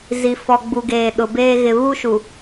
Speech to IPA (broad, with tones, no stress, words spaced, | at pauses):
zi˨fɔ˨ɡ͡bu˨ ɡeː˨ɗʊ˨beː˦ ɣɪ˨βu˦ʃu˨